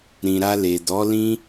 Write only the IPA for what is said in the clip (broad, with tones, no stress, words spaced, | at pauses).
ɾĩ˨ɾa˧le˨ dɔ˨˦lĩ˦